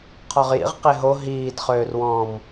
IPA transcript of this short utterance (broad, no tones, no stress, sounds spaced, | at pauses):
qʰ ɔ ʁ j ḭ ʁ q e ɦ o ɦ iː d χ øː r w ɔ̃ː m